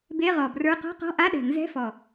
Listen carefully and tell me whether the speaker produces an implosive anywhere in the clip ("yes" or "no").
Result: yes